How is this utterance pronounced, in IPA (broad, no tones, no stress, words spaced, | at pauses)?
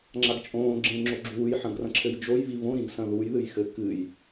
ŋ͡ǁaɡt͡ʃʼõː ɡ͡ǁẽ ŋ͡ǁoɡ͡ǁuːjħɐ̃ɡrɐ̃ ǁʰɘjd͡ʒoj vivõɾĩɡsɐ̃ ðuj ðɨjxɘ kɨj